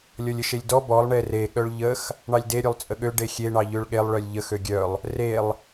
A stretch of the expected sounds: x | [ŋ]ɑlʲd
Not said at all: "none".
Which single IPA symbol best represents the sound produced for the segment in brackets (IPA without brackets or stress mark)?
ɳ